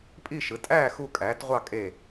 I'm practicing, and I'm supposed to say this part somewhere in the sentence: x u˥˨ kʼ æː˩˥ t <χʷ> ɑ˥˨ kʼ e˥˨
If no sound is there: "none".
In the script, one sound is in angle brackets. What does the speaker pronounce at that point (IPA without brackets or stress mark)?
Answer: ʁʷ